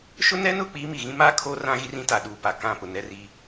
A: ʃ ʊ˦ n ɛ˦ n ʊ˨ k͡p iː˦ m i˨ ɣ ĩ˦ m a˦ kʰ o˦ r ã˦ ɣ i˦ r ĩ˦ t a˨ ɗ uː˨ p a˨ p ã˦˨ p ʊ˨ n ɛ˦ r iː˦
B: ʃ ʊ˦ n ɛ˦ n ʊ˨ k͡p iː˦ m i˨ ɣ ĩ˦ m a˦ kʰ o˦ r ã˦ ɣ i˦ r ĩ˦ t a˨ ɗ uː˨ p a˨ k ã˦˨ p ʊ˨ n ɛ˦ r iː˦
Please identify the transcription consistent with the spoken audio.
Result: B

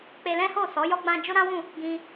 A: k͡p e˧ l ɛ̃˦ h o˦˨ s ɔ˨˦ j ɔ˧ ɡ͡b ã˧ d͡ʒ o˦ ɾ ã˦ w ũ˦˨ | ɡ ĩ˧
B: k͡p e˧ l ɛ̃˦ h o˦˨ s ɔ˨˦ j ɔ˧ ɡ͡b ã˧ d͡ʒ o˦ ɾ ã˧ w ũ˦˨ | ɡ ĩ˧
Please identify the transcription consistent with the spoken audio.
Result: A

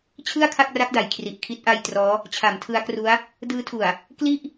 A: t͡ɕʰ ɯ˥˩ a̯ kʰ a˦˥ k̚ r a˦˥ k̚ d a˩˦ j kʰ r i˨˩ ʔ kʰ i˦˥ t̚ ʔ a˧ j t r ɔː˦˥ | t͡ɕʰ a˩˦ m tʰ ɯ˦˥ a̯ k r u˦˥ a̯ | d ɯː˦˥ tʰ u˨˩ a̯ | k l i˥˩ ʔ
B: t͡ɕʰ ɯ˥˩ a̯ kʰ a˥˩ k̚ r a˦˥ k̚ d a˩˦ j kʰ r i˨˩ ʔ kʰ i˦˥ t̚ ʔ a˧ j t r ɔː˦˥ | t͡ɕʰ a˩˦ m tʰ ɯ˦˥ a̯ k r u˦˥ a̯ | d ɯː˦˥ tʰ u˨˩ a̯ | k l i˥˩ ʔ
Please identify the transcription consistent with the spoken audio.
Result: B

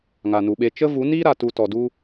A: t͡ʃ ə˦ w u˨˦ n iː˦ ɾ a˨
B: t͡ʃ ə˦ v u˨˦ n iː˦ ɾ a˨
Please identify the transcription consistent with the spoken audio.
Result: B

